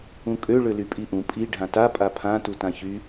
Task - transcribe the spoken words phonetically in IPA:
ũkʼø ɭølypʼiʔũ pʼi ɖʱãta pʼapʰã tutãçy

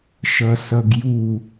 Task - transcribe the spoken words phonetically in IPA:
ʃʌsʌɡju

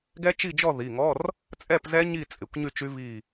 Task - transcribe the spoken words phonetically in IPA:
ɡɛ˦˥t͡ʃi˥˨d͡ʒɔ˥˨ ði˩˧˩ŋɔ˧˥˧r | t͡sʼɛ˥˨pzɛ˦˥ ɲi˥˨ t͡sʼɪ˩˧˩kʷɲy˥˨t͡ʃy˦˥ vi˥˨

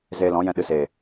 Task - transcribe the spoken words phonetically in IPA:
zeː˧lɔ̃˨˦jɛ̃˧ ɗɨ˨seː˨

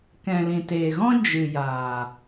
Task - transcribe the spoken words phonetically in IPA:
kɛ̃˨lĩ˨teː˨ɣɔ̃˦ d͡ʒɨ˨jaː˨

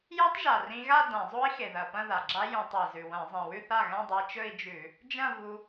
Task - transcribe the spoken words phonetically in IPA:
ja˦˥tˤʒa˨˩rĩ˧ ɣa˥˧ dã˧˩˧zˤo˦˥i̯xe˨˩ ðɐ˨˩ pɐ̃˥˧ða˨˩ɡ͡ǁa˦˥ jũ˧˩˧tˤɵ˨˩i̯zʉ˨˩ wɐ̃˧˩˧zˤĩ˨˩ wʉ˥˧θa˥˩ɣã˥˧ dˤa˧t͡ʃɵ˥˧i̯d͡ʒʉ˧˩˧ | d͡ʒɐ̃˥˧vu˧

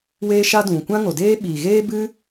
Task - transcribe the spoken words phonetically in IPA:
weː˦ʃa˦dũ˨ kʷã˦ŋo˨deː˦ɓiː˨ ɣeː˦bɨ˦

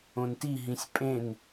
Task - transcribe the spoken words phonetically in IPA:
õnti ɦĩsʲpʼẽn

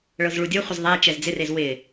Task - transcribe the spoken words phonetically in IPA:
ɭɤzɭudʲɤχʷɪz ðˤɛ t͡ʃɛzd͡zɪrez wɪ

